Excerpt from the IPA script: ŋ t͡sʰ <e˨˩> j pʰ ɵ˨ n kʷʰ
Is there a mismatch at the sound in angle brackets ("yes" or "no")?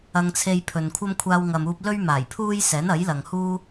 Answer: yes